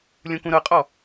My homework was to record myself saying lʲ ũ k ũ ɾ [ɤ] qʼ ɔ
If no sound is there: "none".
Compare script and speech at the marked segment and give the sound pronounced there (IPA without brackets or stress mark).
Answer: ɤ